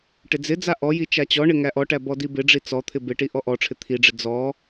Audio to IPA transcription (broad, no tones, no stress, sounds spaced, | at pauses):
ʈ ɪ d͡z ɪ d͡z a ʔ ɔ j i t͡ʃ a t͡ɕ ɔ ɳ ɪ ŋ æ ʔ ɔ ʈ æ b ɔ d i b ɪ ɖ͡ʐ i t͡s ɔ t̪ʰ ɪ b ɪ ʈ i ʔ ɔ ʔ ɔ ʈ͡ʂʰ ɪ t̪ʰ i ɖ͡ʐ ɪ d͡z ɔ